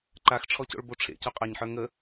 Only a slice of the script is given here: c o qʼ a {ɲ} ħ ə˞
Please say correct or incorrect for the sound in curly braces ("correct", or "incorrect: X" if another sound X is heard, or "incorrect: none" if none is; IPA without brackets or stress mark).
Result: correct